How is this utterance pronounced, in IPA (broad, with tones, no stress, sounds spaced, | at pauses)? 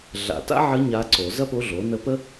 ɮ a̰˨˩˦ t a̰˥ ʕ ə˧˥ ɲ a˧˥ ǀ o˨˩˦ z ɐ˥ p o˧˥ ɮ o˩˥ n ə˧˥ p ə˥